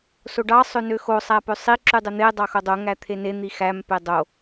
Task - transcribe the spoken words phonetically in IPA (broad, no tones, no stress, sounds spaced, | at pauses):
s o ɖ ɑ sˤ ø n ø x o sˤ æ p ø sˤ i ǁ y dˤ e n̪ e dˤ ɑ x o dˤ o ŋ æ t̪ʰ e n e n̪ i x æ m p e dˤ o